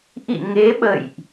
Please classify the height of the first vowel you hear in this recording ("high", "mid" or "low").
high